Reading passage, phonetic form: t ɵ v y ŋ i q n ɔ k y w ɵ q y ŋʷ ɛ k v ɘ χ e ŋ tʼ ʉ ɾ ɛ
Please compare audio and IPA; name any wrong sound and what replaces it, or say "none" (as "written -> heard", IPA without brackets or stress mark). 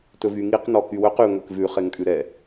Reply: ɘ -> ʉ